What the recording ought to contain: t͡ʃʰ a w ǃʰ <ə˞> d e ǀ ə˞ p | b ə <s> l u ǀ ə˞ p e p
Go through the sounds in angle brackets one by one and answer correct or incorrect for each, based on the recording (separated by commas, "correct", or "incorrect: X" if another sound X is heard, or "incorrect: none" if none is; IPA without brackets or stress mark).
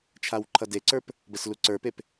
incorrect: ʌ, correct